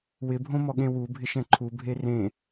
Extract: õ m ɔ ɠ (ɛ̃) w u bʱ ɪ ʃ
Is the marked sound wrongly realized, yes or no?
yes